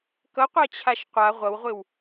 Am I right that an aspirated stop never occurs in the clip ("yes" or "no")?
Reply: no